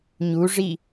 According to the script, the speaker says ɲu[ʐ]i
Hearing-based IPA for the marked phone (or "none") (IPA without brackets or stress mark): ʐ